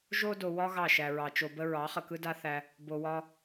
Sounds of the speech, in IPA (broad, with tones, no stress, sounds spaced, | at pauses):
ʒ o˦ d o˨ w ɒ˦ ɣ ɑ˦˨ ʃ æ˨ ɹ ɑ˨ t͡ʃ o˨ b ə˦ ɹ ɑ˨˦ χ ə˨ k ɯ˦ d a˦ θ æ˦ | b o˨ w ɒ˦